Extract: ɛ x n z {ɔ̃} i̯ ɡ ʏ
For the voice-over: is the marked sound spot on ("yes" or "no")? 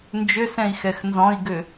yes